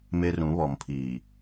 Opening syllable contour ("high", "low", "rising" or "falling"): high